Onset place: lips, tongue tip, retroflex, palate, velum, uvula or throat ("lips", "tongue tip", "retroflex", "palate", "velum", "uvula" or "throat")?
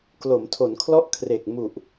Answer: velum